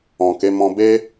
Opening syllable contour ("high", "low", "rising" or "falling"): low